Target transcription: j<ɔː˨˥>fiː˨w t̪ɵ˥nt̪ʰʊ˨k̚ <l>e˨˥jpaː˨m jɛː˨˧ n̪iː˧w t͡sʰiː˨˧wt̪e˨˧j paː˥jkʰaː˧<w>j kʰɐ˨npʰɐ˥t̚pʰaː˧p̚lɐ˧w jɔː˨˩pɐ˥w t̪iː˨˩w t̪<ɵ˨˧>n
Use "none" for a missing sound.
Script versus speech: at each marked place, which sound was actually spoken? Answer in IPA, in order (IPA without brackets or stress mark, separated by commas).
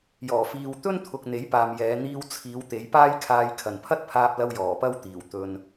ɔː˨˩, n̪, none, ɵ˨